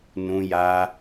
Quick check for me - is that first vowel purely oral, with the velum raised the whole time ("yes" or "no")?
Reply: no